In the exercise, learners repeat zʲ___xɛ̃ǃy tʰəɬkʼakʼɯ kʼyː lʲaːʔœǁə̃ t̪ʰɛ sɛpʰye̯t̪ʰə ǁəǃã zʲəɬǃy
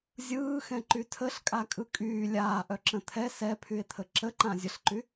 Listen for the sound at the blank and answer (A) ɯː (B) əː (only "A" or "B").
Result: A